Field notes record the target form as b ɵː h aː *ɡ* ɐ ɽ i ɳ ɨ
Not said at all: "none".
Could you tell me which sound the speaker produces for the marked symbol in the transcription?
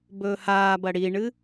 b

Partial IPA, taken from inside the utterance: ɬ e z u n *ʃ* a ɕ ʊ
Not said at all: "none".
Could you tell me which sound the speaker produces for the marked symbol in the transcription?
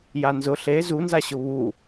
z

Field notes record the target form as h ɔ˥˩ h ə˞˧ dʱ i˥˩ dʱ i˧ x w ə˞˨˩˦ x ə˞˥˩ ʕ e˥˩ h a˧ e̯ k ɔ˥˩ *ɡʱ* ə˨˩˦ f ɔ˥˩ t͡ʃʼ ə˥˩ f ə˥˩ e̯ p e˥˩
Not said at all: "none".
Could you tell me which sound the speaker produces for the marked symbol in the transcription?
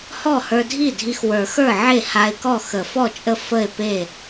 x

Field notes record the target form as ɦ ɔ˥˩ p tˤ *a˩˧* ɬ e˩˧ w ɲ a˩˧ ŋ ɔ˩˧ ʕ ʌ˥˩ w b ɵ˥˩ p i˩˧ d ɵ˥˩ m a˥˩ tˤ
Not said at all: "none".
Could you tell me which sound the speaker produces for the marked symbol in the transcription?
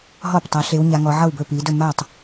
a˩˧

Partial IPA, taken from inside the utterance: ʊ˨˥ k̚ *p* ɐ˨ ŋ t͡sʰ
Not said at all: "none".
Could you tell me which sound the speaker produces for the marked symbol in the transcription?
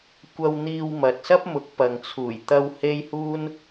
p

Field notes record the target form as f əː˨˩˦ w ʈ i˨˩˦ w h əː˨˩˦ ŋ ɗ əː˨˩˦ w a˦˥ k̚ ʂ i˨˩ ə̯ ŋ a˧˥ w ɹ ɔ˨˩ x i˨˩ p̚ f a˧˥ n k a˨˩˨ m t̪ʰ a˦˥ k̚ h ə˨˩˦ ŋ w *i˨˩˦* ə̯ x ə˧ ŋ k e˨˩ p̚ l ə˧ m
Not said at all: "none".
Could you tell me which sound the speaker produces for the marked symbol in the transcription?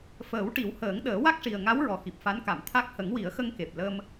i˨˩˦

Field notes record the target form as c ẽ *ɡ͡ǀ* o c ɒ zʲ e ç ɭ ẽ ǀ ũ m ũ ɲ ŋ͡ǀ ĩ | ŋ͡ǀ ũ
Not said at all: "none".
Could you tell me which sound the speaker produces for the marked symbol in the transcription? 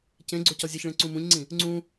ɡ͡ǀ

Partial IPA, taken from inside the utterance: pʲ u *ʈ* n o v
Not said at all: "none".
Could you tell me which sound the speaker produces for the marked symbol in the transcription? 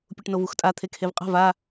ʈ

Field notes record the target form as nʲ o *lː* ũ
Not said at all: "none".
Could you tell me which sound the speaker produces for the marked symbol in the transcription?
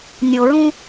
ɹ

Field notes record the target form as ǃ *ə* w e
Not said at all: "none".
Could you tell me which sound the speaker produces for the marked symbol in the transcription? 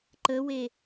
ə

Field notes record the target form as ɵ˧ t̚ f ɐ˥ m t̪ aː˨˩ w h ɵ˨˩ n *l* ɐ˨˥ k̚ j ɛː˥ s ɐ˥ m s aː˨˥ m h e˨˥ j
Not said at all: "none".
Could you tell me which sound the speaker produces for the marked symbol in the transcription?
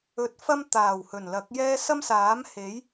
l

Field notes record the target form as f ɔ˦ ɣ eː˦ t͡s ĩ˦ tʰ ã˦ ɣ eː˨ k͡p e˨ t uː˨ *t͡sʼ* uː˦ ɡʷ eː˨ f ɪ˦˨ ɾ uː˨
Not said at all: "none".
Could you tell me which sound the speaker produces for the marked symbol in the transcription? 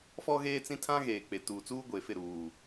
t͡s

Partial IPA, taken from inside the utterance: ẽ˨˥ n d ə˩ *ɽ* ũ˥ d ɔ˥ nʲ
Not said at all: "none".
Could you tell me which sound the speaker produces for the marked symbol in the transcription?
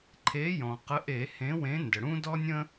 ɽ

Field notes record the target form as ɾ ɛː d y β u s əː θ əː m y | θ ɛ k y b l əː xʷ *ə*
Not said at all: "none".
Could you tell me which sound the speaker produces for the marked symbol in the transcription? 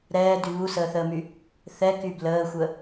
ə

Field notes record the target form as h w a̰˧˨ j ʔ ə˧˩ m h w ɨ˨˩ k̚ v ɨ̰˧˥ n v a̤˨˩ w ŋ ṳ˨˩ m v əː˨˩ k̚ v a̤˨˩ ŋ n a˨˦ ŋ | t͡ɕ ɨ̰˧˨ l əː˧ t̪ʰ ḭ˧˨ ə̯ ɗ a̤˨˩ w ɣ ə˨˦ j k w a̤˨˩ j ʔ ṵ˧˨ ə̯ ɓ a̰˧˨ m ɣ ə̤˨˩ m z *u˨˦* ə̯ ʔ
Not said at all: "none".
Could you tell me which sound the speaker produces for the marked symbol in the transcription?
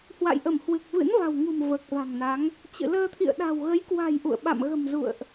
ṵ˧˨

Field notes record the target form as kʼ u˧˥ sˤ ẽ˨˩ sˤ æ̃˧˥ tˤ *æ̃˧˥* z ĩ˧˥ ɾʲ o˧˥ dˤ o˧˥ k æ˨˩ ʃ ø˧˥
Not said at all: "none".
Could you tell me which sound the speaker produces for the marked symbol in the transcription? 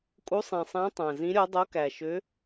æ̃˨˩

